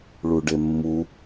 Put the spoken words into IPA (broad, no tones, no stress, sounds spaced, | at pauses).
ɭ u ɖ e mː u